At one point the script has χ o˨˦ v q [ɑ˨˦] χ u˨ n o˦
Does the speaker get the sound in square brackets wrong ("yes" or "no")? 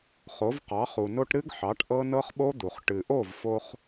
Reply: no